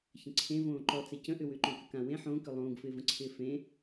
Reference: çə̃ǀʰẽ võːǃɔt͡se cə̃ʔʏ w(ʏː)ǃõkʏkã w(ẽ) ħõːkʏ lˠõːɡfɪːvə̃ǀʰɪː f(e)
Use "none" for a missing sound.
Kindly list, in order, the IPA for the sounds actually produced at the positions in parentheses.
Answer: ʏː, ẽ, ẽ

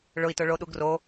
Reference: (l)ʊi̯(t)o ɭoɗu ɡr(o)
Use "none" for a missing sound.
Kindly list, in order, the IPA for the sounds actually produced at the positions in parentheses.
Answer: ɭ, t, o

